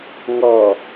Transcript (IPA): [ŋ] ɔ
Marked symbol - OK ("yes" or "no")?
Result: yes